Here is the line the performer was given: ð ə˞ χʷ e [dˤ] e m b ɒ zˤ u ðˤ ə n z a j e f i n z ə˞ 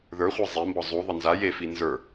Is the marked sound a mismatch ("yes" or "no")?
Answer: yes